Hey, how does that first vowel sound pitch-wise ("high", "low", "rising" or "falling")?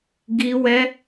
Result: high